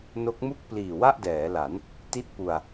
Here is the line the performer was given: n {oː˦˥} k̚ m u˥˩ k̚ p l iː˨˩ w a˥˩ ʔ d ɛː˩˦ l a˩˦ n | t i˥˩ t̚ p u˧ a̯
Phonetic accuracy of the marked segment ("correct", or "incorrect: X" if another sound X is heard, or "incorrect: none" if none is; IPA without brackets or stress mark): incorrect: o˦˥